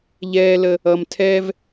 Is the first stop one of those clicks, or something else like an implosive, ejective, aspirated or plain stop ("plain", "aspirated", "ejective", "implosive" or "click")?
aspirated